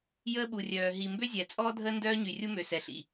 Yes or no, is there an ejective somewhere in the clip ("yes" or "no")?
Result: yes